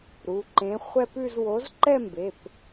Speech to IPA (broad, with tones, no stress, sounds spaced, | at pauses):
ɾ u˩˧˩ ǃ ẽ˨˥ χʷ ɛ˥˧ p ʉ˥˧ z w o˨˥ z ǃ ɛ˥˧ m b e˩˧˩ p